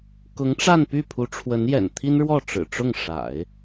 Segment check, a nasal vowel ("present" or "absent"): absent